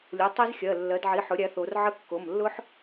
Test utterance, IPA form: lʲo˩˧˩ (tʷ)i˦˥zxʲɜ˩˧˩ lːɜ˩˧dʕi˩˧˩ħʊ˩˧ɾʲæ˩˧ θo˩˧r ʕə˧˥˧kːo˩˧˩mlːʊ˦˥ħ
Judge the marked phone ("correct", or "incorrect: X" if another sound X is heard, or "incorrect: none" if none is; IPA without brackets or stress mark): incorrect: tˤ